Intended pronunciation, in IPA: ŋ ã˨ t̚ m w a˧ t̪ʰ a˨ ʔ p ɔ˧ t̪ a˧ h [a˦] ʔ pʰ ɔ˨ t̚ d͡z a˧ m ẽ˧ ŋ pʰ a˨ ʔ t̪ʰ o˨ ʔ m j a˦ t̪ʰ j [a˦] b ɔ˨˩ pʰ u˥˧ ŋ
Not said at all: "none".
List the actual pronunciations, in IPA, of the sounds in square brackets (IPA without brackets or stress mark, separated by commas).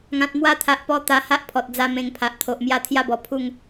a˦, a˦